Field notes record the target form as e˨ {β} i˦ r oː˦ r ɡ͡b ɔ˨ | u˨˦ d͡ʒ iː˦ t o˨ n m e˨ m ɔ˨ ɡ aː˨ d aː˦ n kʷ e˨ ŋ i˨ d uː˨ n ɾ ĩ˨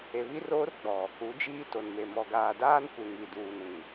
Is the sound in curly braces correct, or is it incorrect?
correct